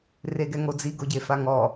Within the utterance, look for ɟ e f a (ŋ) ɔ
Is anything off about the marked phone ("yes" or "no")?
no